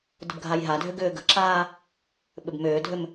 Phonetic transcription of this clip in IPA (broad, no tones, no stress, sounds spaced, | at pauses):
d ə̤ b ɡʱ a j ɦ a dʱ ʏ ɡ ʏː ɡ ə̤ ǁ aː | ɓ ʏ b m ʏː dʱ ʏ m